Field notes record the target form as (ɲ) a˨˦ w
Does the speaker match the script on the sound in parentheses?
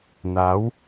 no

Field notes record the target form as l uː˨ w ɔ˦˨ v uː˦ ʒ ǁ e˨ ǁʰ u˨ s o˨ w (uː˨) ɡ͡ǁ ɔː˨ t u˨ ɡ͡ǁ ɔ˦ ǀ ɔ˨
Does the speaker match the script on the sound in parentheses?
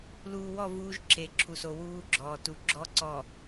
no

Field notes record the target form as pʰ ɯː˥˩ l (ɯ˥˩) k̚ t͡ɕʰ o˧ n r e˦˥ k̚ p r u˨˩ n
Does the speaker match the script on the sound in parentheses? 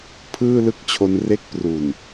yes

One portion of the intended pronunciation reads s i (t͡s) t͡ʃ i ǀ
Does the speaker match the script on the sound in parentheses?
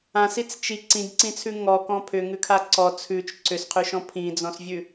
yes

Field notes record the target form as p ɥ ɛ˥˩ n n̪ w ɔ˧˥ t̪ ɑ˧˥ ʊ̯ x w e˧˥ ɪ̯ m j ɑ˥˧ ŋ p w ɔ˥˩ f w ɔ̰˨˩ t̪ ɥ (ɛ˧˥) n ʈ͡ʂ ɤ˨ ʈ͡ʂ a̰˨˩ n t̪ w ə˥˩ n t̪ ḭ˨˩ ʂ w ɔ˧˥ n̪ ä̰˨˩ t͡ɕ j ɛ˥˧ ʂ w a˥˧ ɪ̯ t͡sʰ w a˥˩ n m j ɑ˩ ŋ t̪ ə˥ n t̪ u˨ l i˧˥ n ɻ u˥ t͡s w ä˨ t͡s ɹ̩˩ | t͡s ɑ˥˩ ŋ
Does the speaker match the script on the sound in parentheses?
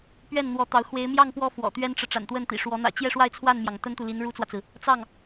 no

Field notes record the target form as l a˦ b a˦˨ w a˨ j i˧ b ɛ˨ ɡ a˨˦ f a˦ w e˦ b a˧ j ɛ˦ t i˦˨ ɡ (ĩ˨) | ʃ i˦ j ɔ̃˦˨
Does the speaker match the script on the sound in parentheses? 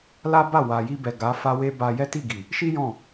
no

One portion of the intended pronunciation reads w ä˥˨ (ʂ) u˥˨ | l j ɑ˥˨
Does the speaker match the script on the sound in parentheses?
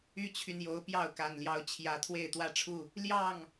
no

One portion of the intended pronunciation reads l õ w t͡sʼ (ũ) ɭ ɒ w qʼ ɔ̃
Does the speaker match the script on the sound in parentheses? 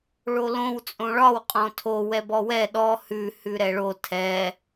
no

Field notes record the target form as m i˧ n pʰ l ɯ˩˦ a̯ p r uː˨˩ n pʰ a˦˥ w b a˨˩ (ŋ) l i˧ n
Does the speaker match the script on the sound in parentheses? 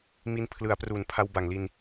yes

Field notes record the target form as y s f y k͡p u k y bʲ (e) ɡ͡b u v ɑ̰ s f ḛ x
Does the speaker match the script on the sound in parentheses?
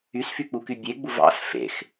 yes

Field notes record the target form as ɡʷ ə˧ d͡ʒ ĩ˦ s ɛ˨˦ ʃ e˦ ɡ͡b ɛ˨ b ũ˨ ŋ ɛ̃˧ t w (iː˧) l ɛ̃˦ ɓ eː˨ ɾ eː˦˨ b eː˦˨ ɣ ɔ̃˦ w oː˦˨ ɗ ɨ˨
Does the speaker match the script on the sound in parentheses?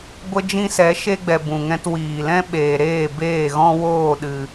no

